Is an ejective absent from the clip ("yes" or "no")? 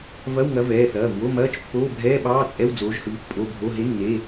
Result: no